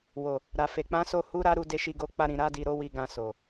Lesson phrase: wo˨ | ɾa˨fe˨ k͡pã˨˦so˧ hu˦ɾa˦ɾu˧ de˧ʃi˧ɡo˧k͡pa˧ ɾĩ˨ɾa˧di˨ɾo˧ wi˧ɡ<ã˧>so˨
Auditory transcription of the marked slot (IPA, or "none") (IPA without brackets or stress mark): ã˧